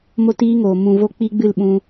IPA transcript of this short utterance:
m o˦ t iː˦ ŋ oː˨ m ũ˨ v o˧ k͡p i˦ ɡ͡b ɨ˦˨ l ɓ ũ˧

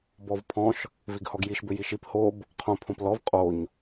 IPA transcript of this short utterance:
b ɔ v pʰ ɔ̃ ʃ | v i ɡ h ɔ ɡ j i ʃ b ʏ j i ʃ i p h o b | qʰ õ pʰ õ p l ɔ v qʼ o ɲ

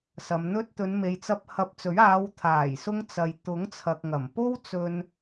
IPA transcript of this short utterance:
s ɐ˨˧ m n̪ ɵ˧ t̚ t̪ ɵ˨˧ n m e˨˧ j t͡s ɐ˧ p̚ h ɐ˧ p̚ t͡s ɵ˨˥ ɥ aː˨˧ w t̪ʰ aː˨˩ j s ʊ˧ ŋ t͡s ɐ˨ j t̪ ʊ˨˥ ŋ t͡sʰ ɐ˨ k̚ ŋ ɐ˨˩ m p o˥ w t͡s ɵ˧ n

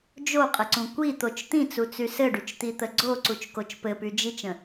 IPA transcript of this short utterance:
d͡ʒ o qʼ ə ǀ ũ kʷ i t̪ o t͡ʃ t̪ ĩ t͡s u t͡s y s ɘ ɖ y t͡ʃ t̪ i t̪ ə ɡ͡ǀ o ǀ u t͡ʃ k o t͡ʃ p ɘ p y d͡ʒ i t͡ʃ ə̃

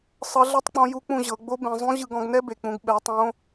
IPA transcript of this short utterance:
sˤ ɤ˧˥ ɮ ɛ˥ tˤ k͡p ɔ̃˧˥ j u˧˥ k͡p ũ˧ ʑ ɤ˩˧ ɡ͡b o˧˥ b ẽ˩˧ zˤ ũ˧˥ ʑ ɯ˧ ɡ ɔ̃˧ ɡ n ɛ˥ b e˩ k͡p ũ˩˧ ɡ ɓ ɛ˩˧ tˤ õ˧˥

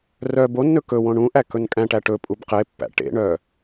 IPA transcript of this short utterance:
r œ b o nː ɵ k ɵ w õ ɳ ũ ʔ æ k ɵ n kʼ æ̃ ʈ æ ʈ ɵ pʼ u b q e pː æ̰ ʈ ḛ ɳ œ

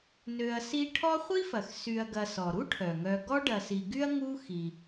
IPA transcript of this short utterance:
n ø˨ ɐ̯ s i˦ ʈʰ ɔ˦ χʷ i˥ f ɐ˩ x s y˨ ɐ̯ ɡ ɐ˨ s ɔ˩ ɾ u˥ ʈʰ œ˩ ŋ œ˨ ɡ ɔ˥ ɖ ɐ˨ s i˨ ɡ y˥ ɐ̯ ŋ u˦ x i˩

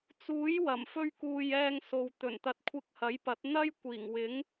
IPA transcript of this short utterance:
t͡s uː˨˥ j w ɐ˨˩ m f ɵ˥ ɥ k uː˧ j ɛː˧ ŋ s o˨ w t̪ ɵ˨˩ n t̪ ɐ˨˥ t̚ kʷʰ ɪ˧ k̚ h ɐ˨˥ j p ɐ˨˥ t̚ n̪ ɐ˥ j kʷ iː˨˩ ŋ w ɪ˨˥ ŋ

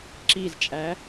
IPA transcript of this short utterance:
ǁ i z t͡ʃʼ æ

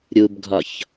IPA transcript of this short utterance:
ɾʲ u b ɡʱ ɒ ç

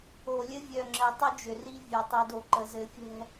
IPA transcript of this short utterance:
o˨ lʲ ɘ˦ vʲ œ˨ ŋ͡ǁ ɘ˨ tˤ ʏ˦ d͡ʒ ʏ˨ r i˦ vʲ ɛ˨ tˤ i˨ d o˨ ǃ ə˨ z ɘ˨˦ fʲ ɛ̤˦

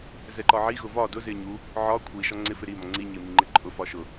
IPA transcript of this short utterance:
z ɛ ǃ ɒ ʕ i ɣ ʊ v ɒ d ʊ z ɪ ɲ u | ʕ ɒ kʷʰ i ʃ ɒ ŋ͡ǀ ɪ f ɪ ɾ i m ɒ ŋ͡ǀ i ɲ ɪ m i ŋ͡ǃ ɪ ǃʼ ʊ f ɒ ʃ ʊ

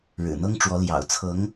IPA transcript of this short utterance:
ɻ ɻ̩˨˩ n̪ ɤ˥ ŋ ʈ͡ʂ w ɔ˧˥ l j ɑ̰˨˩ ʊ̯ t͡sʰ ɤ˧˥ ŋ

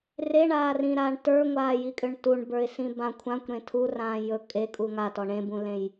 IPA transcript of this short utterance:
r e ɳ aː r ĩː ɾ aː ɳ t ə˞ ŋʷ aː j i kʼ ʏ ɳ t u ɳ b ə˞ ɪ̯ s ĩ b ã kʷʰ ã kʷ ɾ ẽ tʰ u r ãː j ɵ kʼ e kʼ u ŋ a t ɔ ɳ ẽ b ũ l ẽ j

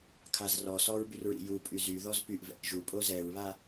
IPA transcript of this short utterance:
kʰ a z r ɔ s ɔ ɹ b y r ɹ ḭ j u pʼ y z y ð ɔ z p y ʔ v ɛ̰ ʔ ʒ u pʼ o z ɛ ɹ β a

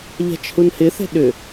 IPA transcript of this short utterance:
ʎ a̤ t͡ʃ h u n h ɪ θ ɛ̤ ɗ ʏ

